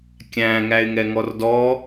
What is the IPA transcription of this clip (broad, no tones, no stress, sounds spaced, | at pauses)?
kʲ æ̃ ŋ æ ɪ̯ ŋ ɛ ŋ ɔ r d ɔ